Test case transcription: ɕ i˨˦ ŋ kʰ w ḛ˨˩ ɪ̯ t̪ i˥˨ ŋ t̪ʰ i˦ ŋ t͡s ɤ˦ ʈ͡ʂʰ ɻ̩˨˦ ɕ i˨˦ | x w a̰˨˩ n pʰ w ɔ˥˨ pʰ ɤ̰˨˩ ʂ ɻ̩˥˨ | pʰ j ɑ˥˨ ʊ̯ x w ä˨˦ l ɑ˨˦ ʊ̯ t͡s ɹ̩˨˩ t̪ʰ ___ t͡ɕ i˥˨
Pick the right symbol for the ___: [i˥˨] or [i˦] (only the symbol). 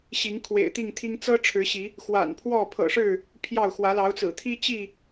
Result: i˦